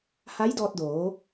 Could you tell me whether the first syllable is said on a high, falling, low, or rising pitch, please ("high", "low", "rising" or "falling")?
rising